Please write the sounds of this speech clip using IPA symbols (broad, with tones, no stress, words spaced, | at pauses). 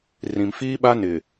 rĩ˨mfiː˦ɓa˦ nɪ˨